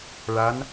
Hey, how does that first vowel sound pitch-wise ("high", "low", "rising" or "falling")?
rising